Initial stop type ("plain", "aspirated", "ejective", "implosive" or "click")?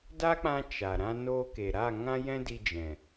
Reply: plain